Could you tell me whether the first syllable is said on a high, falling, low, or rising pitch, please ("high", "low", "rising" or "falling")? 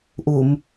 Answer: low